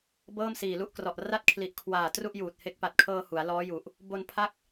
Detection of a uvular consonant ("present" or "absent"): absent